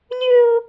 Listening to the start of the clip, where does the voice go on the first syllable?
high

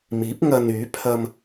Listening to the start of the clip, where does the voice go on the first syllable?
rising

